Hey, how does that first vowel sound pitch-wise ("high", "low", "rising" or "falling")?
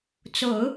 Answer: low